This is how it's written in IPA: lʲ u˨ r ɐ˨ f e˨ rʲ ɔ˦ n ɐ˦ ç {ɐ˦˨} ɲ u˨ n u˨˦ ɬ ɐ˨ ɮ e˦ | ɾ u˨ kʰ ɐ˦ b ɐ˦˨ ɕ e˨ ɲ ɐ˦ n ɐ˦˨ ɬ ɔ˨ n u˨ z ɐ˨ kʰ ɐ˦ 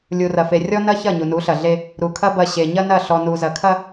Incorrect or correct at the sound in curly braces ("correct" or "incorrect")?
correct